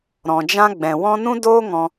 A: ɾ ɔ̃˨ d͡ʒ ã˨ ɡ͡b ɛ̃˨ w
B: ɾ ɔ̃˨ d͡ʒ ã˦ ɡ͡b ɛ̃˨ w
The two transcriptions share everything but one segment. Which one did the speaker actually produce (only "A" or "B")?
B